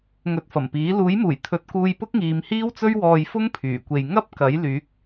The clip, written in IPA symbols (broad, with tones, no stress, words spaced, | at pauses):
ŋɵ˨˥t̚fɐ˨˩mpiː˨˥ luː˨˥jmuː˨˩jt̪ʰɵ˨˥t̚ kuː˧jpʊ˥k̚ŋiː˨˧m hiː˥wt͡sɵ˥ɥwɔː˧j fʊ˥ŋpʰyː˨˩kʷe˨j ŋɐ˥p̚ kɐ˨˥jlyː˨˥k̚